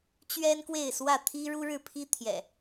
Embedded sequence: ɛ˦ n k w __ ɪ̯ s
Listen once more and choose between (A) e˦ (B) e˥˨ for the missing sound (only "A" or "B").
B